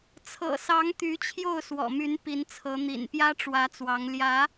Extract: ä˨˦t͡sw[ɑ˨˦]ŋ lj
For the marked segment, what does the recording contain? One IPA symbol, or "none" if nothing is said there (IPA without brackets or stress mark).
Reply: ɑ˨˦